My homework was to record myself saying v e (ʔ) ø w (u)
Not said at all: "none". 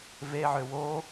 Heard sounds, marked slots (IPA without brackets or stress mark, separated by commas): ʕ, o